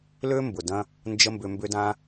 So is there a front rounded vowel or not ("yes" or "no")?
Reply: yes